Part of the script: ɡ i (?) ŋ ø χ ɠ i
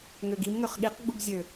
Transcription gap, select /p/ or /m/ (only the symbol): m